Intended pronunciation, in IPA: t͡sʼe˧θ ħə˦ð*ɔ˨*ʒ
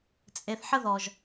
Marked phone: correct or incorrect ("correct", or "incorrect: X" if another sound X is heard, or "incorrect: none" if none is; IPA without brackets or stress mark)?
correct